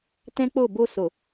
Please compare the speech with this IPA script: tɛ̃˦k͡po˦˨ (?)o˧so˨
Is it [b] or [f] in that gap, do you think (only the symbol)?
b